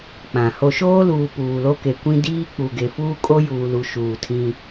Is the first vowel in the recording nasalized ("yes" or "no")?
yes